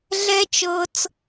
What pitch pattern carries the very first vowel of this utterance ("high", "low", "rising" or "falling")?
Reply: high